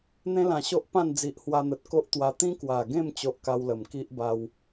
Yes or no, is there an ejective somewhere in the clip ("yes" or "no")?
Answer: no